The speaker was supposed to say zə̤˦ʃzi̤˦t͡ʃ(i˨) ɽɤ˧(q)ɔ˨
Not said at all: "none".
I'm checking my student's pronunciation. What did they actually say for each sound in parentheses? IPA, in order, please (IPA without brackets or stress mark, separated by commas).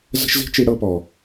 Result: i˧, p